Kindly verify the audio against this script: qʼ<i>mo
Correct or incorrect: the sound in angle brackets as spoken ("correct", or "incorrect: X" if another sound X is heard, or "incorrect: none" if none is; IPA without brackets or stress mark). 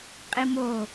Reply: correct